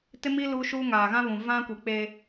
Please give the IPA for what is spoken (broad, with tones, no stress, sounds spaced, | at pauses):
t ɪ˦ m i˦ l u˦ ʃ uː˦ ŋ aː˨ ɣ ã˦ β ũ˨ v ã˦ kʷ i˨ k͡p e˦